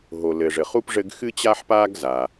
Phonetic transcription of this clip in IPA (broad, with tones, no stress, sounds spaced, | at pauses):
ɦ o˩ l ɘ˩ ʐ ɘ˩ χ u˥ p ʐ ɘ˥ ɡ x ɨ˥ t͡ɕ a˥ ħ p a˥ ɡ z a˩